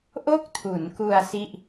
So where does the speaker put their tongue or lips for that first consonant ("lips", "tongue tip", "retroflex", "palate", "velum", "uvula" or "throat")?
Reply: throat